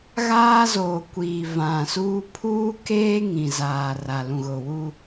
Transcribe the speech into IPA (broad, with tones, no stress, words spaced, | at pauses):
ɣaː˦zoː˨ kʷiː˨vã˨suː˦ pʰuː˦keː˦ ŋĩ˨zaː˨ra˨ lũ˨ɣʊ˨wu˦